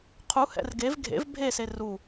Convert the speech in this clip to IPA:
qʰu hɛ̰rɡev ɡʱḛv bʱese ru

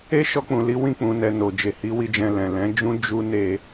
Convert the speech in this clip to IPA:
e˦ʃɔ˧k͡pũ˨li˨˦ wĩ˦˨k͡pũ˨nɛ˨ no˨d͡ʒe˨ hi˨˦wi˧ d͡ʒɛ̃˧lɛ̃˨ lɛ̃˨˦d͡ʒũ˦ d͡ʒu˦ ne˧

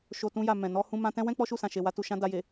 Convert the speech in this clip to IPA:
ʃo˨ tũ˧ja˨ mɛ̃˨ nɔ˧ hũ˧ mã˧tɛ̃˦wɛ̃˦ k͡pɔ˦ʃu˦˨sã˨ʃe˨ wa˧tu˨ʃã˧ da˨je˨

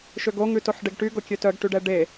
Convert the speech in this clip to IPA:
ʃøɡoŋʉ toħɖeɡʈyɡo kʲøtœɡʈyɖɛ ɖe

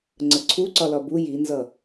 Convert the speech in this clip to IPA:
ŋ͡ǀəǀʰu ǀɒlɒbu jinzʌ

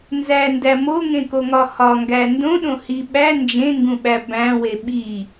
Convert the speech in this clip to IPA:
nzændæ moŋẽkoŋɒ hɒŋɡæ ndõɗõ hi ɓæ nd͡ʒẽŋɡũɓæ bæ̃we ɓi

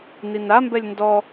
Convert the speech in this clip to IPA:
ninambɛlʲ ndɔ

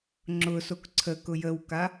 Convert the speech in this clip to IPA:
ŋ͡ǁʊsok ǀʰəkʊ jəwka

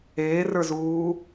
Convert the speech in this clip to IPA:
eːrə˞zuː

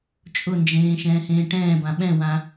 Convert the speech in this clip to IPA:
t͡ʃʼʊnd͡ʒẽː ʃɛ̃ːhẽːʈɛ̃ːbã ɓɛ̃wã

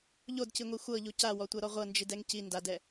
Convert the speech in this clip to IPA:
ʎodciŋʷi xʷɤʎu cawɔtʷɤɾɔ ʁʷɤnd͡ʒidɛŋ ci ndadɛ

